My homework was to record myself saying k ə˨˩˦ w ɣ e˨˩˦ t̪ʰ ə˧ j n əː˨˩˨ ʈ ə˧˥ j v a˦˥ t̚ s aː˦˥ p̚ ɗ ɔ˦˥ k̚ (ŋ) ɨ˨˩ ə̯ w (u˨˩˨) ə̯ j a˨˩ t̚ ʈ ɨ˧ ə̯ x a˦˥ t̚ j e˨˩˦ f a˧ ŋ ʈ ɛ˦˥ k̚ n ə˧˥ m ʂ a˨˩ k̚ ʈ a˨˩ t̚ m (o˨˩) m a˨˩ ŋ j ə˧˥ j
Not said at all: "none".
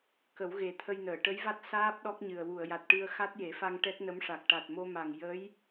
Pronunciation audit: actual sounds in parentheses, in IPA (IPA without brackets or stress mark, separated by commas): ɲ, u˨˩˨, o˧